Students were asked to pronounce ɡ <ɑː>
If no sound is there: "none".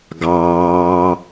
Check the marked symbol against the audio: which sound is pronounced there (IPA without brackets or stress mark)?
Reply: ɑː